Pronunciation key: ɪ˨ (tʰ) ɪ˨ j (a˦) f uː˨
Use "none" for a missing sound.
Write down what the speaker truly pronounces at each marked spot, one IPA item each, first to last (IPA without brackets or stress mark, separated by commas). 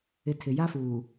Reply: tʰ, a˦